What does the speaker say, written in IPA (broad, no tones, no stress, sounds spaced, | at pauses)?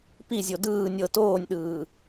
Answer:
p i zʲ o d ɯː nʲ ɤ t oː nʲ ɗ ɯː